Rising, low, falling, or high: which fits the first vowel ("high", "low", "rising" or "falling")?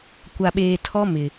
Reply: low